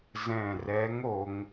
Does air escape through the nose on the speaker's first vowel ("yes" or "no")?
yes